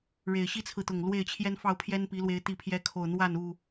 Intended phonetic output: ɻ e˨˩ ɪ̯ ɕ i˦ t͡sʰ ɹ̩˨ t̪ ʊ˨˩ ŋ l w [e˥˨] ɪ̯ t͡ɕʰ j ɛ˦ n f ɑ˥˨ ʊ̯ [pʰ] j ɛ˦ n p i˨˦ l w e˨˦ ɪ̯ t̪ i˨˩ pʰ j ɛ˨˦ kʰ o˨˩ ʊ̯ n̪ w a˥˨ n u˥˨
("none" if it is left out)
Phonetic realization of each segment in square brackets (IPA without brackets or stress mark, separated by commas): e˥˨, pʰ